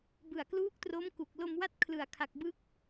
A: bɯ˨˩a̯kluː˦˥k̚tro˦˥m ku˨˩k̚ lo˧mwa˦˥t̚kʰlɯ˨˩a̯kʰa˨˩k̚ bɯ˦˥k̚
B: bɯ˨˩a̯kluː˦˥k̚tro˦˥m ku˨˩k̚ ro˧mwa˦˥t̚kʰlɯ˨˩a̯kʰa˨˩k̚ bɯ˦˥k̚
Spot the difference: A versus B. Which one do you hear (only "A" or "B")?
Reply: A